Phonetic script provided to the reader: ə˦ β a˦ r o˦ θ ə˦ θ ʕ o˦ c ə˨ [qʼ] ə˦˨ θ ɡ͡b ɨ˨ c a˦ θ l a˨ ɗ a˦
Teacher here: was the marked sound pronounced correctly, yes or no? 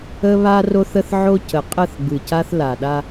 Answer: yes